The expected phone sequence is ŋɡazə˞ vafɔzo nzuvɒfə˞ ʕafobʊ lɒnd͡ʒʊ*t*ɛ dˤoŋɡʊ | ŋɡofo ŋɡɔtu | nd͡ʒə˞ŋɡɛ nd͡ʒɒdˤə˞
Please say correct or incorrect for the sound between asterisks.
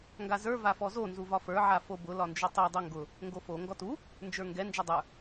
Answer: incorrect